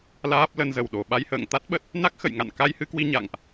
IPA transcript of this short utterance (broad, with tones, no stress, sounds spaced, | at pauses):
l aː˦˥ p̚ l ə˧ n z ə˧˩ w ɗ o˧˩ ɓ a˧ j h ə̰ː˧˨ ŋ t̪ a˦˥ t̚ ɓ ə˦˥ t̚ | n a˦˥ k̚ x ə̰˧˨ j ŋ a̰˧˨ n k a˧ j h ɨ˧ k w i˧ ɲ a̰˧˨ ŋ ʔ